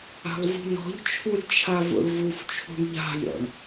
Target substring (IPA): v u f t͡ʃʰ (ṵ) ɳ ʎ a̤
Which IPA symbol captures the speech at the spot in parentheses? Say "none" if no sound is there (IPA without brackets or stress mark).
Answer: ṳ